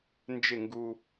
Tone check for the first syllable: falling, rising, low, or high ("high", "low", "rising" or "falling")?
falling